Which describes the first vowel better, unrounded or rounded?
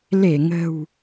unrounded